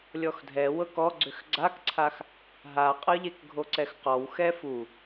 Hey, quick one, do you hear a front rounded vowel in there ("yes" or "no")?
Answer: yes